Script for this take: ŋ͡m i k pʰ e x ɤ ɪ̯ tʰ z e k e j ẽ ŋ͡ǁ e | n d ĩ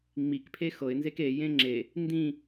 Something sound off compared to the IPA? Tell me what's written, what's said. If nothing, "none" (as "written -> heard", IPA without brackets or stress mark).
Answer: tʰ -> n